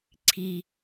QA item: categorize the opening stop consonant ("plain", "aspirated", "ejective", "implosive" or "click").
click